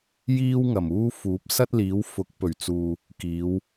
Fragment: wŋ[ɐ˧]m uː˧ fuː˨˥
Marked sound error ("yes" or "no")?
yes